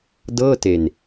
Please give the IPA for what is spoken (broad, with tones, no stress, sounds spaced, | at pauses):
d ɤː˥˩ t e˧ n